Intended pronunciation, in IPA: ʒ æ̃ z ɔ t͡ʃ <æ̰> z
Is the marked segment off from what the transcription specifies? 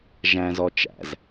no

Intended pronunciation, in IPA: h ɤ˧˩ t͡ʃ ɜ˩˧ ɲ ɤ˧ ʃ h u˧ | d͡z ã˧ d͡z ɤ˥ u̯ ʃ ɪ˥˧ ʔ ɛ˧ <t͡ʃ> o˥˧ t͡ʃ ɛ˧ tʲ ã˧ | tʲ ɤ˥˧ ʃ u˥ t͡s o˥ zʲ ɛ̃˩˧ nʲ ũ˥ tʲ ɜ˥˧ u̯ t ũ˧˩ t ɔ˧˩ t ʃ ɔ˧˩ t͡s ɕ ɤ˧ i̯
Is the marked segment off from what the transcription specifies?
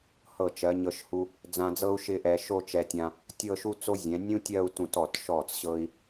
yes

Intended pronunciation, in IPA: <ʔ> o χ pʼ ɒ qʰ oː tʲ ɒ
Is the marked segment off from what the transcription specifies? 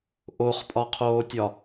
no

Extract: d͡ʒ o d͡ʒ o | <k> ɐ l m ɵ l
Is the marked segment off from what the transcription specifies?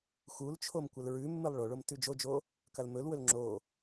no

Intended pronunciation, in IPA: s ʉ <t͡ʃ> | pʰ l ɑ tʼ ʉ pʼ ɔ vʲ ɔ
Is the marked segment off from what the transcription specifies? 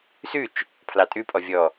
no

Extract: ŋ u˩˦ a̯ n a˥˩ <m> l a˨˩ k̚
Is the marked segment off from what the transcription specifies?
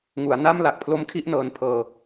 no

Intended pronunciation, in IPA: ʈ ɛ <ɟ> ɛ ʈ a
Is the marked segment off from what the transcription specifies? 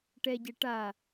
no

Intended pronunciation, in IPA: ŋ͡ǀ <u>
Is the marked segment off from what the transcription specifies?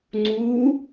no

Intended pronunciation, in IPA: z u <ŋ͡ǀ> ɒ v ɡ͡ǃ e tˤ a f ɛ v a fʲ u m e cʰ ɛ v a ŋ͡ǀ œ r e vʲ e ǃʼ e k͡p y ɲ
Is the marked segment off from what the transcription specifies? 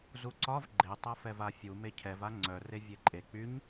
yes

